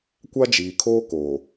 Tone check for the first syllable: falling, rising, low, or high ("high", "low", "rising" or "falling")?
high